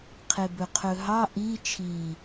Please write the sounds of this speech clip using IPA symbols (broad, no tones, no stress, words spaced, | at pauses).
qʰebɵqʰɵɦɑ ʔi t͡ʃʰi